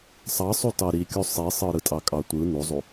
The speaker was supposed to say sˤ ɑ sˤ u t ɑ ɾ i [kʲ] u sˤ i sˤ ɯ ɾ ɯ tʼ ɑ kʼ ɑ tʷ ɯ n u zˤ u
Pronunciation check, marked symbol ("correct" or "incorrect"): correct